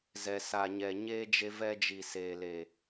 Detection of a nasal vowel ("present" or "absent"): absent